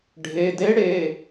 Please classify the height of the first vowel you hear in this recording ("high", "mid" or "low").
mid